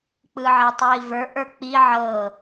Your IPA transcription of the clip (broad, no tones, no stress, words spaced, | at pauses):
k͡pɯʕetˤjivə˞ ʔə˞k͡pi ʕɤ